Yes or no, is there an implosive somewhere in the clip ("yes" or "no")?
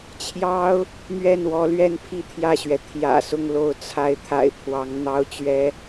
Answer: no